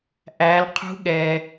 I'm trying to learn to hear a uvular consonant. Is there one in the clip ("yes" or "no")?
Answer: yes